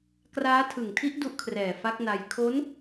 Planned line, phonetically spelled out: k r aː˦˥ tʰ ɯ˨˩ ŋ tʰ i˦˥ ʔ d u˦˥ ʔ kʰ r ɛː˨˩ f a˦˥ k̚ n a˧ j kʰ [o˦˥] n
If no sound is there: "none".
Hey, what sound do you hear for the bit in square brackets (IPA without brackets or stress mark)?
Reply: o˦˥